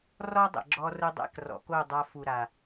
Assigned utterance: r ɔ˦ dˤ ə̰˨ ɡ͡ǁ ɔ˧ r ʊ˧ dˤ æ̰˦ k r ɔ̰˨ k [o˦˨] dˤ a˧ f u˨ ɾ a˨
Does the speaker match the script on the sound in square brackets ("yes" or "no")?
yes